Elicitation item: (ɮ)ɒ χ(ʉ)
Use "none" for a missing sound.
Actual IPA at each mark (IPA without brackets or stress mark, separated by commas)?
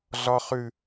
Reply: ɮ, ʉ